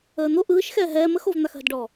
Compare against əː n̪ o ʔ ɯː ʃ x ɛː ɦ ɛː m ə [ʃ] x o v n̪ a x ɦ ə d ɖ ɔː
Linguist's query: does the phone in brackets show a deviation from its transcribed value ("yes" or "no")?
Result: yes